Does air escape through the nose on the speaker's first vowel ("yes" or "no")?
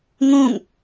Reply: yes